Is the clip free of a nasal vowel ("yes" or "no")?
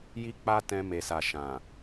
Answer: no